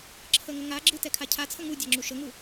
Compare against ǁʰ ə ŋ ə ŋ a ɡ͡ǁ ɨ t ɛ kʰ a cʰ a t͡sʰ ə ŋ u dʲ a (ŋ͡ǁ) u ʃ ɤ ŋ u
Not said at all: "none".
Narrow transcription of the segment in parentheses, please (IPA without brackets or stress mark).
ŋ͡ǁ